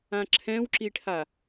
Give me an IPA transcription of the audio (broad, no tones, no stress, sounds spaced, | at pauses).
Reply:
ã ǁʰ ɛ̃ w ǁ i ʈʰ a